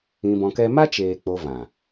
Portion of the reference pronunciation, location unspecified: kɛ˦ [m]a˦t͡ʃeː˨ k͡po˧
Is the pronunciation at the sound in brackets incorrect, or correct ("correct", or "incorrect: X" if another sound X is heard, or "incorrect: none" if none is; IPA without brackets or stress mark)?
correct